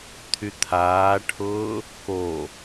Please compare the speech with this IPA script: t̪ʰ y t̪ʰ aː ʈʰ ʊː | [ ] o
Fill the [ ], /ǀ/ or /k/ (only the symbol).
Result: k